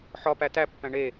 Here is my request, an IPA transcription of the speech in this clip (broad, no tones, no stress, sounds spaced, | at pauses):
ħ ɒ p æ t æ pː æ̃ ɳ e